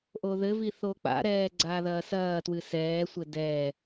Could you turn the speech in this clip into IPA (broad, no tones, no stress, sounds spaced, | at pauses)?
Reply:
ʔ o ð ɘ v i θ o k͡p a̰ ɾ ɛː ɡ͡ǀ aː ð ɐː s ɐː t w ɨ s ɛː sʷ ɘ d ɛː